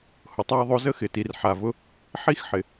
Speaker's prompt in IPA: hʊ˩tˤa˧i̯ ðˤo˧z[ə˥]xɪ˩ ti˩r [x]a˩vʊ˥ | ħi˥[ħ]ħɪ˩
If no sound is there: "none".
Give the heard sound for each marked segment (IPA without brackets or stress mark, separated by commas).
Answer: ə˥, ħ, x